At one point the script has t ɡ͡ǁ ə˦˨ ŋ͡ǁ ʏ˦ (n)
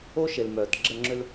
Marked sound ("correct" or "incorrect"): incorrect